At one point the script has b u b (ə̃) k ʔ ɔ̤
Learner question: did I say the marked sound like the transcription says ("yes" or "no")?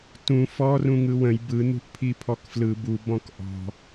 no